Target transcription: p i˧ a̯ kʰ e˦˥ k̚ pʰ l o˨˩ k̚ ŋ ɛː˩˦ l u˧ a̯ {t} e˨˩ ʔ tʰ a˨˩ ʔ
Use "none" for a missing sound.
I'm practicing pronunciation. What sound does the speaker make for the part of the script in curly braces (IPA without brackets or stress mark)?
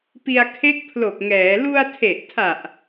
tʰ